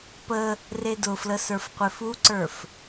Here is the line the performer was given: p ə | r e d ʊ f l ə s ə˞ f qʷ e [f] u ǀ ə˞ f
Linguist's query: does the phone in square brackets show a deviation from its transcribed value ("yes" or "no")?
no